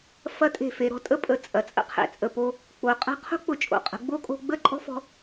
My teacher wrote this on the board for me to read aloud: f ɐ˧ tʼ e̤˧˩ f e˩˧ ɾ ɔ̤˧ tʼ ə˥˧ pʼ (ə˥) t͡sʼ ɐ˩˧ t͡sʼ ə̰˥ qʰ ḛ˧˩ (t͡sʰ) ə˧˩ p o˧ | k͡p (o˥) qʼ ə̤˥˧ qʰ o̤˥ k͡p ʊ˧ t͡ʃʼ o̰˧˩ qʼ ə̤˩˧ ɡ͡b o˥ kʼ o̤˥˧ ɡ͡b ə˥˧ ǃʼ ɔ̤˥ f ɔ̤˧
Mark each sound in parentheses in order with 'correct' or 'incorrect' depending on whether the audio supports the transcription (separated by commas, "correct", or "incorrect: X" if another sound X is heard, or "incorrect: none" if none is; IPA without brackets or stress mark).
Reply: incorrect: ə˧˩, incorrect: t͡sʼ, incorrect: o˩˧